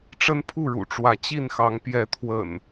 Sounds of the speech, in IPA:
ʈ͡ʂ ə˦ n pʰ u˥˨ ɻ ṵ˨˩ ʈ͡ʂ w ä˨˦ t͡ɕ i˥˨ n x ɑ˨˦ ŋ p j ɛ˨˦ t̪ʰ w ə̰˨˩ n

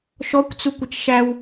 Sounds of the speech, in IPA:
ʃ ɔ kʷ t͡s u kʷ ɪ t͡ʃ ʃ æ w

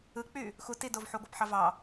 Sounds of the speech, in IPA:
ɯ k͡p y | x u t i d o v ħ u ɡʷ æ p ħ ɑ v ɑ

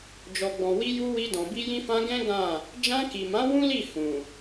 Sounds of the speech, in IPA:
d͡ʒ ɔ˨ ɡ͡b ɔ̃˨ w i˧ j u˧ w i˧ d ɔ̃˨ b i˧ j ĩ˧ f ã˧ ɡ ɛ̃˦ ɡ ã˦˨ | d͡ʒ ã˧ k i˨ m ã˨˦ w ũ˦ l i˦˨ h ũ˨

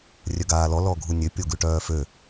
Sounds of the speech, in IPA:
rʲ œ ɡ aː l ɔ l ɔ ɡʱ u nʲ ø pʲ o ɡ ʉ ʈ œː f ø

